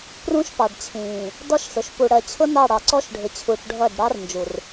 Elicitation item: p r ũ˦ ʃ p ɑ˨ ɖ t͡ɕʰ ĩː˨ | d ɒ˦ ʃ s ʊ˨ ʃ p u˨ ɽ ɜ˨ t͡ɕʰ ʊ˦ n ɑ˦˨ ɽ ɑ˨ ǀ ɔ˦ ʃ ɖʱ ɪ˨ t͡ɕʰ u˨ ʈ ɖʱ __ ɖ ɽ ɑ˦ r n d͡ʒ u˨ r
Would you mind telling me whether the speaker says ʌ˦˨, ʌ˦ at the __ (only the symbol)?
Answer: ʌ˦˨